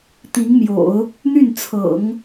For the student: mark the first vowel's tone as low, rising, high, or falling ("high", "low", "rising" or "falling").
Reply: rising